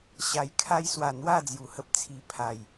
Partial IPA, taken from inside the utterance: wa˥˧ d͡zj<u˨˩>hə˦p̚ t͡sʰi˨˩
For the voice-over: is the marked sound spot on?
yes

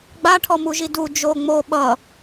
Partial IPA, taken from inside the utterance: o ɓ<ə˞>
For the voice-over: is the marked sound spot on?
no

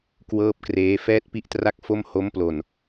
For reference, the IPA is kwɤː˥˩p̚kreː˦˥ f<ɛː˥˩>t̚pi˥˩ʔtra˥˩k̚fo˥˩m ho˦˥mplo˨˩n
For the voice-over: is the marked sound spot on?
yes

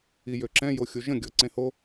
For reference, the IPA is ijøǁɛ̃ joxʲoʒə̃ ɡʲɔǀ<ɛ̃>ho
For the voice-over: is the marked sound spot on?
no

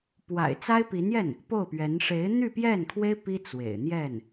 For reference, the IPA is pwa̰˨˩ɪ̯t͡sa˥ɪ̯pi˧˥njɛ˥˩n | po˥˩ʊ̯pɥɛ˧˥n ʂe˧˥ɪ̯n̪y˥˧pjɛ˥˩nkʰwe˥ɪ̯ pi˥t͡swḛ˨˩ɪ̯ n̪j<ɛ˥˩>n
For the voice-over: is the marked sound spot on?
yes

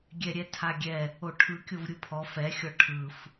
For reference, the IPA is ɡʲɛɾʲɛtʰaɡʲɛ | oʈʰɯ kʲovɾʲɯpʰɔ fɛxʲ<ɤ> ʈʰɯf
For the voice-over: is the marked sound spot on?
no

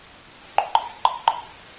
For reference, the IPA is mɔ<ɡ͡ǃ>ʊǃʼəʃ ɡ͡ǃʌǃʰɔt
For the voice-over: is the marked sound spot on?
yes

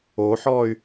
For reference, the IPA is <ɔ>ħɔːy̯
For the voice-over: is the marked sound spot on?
no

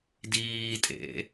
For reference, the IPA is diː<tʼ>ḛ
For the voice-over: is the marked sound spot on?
yes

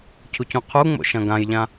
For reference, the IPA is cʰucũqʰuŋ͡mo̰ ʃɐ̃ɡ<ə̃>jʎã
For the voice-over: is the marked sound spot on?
no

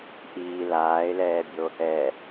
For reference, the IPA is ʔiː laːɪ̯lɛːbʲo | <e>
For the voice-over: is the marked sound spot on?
no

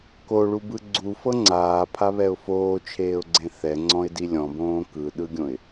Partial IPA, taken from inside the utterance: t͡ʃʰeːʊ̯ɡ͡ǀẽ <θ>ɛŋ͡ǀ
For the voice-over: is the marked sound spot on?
yes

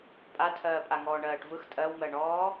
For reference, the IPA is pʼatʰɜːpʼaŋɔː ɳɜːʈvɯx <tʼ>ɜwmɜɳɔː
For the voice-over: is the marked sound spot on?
yes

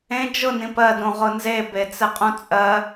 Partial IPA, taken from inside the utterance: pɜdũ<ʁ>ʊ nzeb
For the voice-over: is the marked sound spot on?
yes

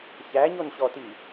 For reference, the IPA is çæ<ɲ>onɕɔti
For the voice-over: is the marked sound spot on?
yes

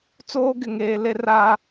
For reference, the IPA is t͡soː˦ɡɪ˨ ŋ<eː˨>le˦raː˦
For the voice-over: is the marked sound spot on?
yes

